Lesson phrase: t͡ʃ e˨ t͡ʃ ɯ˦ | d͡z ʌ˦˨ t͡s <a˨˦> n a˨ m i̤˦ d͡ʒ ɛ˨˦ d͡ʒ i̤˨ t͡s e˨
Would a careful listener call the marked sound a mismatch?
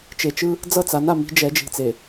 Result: no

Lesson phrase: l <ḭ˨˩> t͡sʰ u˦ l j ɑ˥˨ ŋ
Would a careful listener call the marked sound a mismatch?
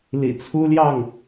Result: no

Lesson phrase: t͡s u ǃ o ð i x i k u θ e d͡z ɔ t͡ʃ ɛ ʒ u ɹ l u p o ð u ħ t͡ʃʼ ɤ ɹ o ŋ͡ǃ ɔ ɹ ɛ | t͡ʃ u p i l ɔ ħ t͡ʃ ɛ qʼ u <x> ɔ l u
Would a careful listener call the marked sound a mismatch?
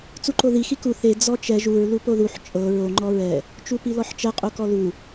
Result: yes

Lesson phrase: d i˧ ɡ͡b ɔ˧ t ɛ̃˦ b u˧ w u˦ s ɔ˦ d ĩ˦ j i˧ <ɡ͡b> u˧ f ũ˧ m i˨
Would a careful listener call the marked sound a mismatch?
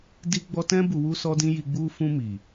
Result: no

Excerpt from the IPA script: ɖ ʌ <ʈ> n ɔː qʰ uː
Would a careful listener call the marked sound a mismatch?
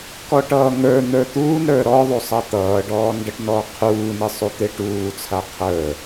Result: no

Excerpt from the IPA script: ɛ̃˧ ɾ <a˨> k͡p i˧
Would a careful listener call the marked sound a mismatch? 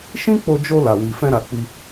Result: no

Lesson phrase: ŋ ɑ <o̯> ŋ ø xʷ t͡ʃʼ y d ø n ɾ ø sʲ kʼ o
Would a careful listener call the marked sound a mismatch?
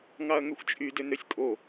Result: yes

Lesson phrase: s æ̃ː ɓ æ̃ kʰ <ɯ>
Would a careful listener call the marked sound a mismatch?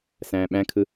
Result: no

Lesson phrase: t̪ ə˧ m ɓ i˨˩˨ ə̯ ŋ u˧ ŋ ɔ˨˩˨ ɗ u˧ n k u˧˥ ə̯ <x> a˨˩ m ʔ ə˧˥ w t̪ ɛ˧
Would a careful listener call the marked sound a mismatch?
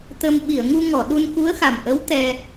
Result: no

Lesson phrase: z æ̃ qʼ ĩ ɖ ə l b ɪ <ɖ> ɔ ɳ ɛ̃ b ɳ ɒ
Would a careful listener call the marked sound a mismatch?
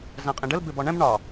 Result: yes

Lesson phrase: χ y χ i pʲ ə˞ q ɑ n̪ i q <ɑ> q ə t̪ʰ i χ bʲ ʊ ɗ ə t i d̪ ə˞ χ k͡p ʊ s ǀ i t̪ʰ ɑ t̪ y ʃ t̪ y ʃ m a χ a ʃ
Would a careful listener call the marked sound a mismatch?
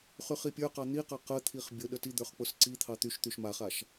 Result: no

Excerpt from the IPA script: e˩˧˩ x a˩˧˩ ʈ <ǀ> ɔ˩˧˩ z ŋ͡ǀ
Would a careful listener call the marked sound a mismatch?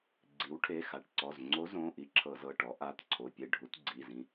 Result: no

